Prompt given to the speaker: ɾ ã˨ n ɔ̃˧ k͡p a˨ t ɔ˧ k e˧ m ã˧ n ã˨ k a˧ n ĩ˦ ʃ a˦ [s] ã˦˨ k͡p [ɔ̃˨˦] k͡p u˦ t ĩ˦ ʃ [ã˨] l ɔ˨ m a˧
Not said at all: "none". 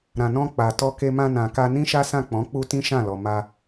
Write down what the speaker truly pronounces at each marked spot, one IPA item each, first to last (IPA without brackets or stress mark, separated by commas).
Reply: s, ɔ̃˨˦, ã˦˨